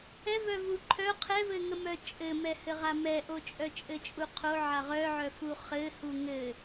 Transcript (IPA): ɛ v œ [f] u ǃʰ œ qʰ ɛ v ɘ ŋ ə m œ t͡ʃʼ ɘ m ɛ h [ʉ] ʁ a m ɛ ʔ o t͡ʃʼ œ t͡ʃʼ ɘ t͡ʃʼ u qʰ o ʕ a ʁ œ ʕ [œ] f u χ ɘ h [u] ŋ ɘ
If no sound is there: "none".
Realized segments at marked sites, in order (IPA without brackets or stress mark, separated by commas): v, ɘ, œ, u